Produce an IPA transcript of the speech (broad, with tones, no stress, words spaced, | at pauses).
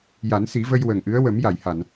ja˨˩˦nsi˨˩˦və˧j wə˨˩ŋʔɨ˧˥ə̯ wə˨˩˦mja˨˩˨jha˨˩˨n